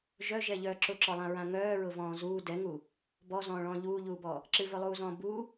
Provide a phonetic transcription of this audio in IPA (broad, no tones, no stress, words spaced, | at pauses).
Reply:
ʒœʒɛʎœː ǁʊǁɔlˠãɹã ŋœːɹʊvɔ̃ː zuː dɛŋu | bɔzɔ̃ːɭɔ̃ː ʎuːʎuːbɔ | ǁɨvœlˠuːzɔ̃ː bu